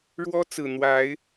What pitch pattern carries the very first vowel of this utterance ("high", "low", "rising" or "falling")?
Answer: high